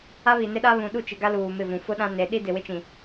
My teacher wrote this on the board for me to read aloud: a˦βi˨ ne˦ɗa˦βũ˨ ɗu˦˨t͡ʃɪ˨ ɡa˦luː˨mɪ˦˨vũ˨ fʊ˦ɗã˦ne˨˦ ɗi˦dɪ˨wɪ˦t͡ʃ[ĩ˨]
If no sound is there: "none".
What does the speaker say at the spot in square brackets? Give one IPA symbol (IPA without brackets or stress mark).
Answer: ĩ˨